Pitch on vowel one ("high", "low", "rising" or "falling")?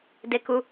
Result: falling